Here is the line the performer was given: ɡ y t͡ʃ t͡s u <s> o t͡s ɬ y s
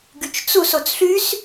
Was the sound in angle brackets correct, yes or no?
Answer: yes